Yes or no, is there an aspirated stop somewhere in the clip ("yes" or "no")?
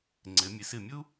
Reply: no